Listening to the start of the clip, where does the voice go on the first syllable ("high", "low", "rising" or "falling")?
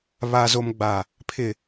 low